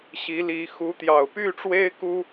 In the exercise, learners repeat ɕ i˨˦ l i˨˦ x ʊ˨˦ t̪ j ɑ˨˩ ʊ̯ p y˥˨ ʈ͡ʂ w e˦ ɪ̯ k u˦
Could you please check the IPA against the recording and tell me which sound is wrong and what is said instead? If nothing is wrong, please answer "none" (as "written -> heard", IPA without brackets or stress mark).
ʊ˨˦ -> u˨˦